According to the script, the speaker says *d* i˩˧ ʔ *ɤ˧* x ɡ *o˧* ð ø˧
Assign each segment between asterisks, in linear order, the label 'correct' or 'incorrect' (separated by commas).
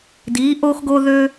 correct, incorrect, correct